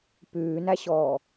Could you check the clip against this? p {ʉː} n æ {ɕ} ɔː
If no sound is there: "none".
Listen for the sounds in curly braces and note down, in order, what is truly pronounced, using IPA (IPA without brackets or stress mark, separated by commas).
ʉː, ɕ